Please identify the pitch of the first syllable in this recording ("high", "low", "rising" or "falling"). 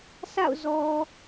falling